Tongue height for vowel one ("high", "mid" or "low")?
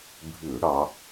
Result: high